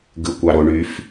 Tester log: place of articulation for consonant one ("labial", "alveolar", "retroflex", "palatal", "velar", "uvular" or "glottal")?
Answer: velar